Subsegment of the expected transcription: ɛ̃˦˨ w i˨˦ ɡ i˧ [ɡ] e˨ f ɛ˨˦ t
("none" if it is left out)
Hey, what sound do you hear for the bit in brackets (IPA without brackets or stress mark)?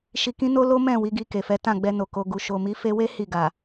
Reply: k